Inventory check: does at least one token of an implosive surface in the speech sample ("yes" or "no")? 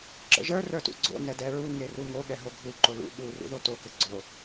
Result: yes